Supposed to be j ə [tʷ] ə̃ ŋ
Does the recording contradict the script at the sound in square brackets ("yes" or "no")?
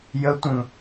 no